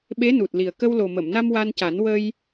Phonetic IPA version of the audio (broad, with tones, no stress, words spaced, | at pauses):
ɓe˧˥nu˨˩t̚li˨˩ə̯ kə˧wlo˨˩mə˨˩˨mna˧m wa˧nca˨˩˦n wə˧j